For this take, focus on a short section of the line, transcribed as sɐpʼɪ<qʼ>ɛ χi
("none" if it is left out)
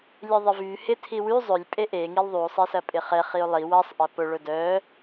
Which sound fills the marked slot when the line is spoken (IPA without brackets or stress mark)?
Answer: χ